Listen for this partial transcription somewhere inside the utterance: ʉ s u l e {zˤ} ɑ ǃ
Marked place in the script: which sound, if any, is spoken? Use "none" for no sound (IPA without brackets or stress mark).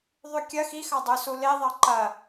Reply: ðˤ